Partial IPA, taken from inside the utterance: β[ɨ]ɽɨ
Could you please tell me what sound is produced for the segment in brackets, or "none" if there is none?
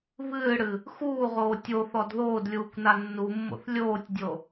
ɨː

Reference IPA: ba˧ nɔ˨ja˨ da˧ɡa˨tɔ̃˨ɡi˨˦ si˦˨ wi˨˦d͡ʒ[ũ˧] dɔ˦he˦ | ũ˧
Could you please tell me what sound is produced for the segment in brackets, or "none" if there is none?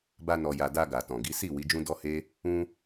ũ˦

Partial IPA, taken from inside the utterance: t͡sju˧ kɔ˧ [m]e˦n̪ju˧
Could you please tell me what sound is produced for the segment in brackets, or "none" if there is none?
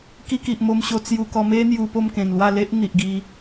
m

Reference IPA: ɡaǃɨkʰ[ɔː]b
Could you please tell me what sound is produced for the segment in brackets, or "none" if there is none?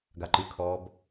ɔː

